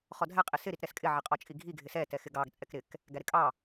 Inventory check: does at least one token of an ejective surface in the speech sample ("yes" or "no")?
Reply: yes